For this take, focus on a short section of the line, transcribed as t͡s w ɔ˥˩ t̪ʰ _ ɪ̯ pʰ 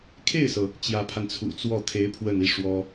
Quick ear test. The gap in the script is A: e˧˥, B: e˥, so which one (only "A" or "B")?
A